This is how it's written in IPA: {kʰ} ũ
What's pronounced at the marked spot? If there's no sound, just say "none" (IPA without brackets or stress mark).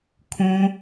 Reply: kʰ